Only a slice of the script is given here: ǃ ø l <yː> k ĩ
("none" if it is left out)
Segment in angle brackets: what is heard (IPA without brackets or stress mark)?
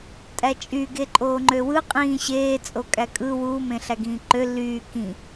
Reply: yː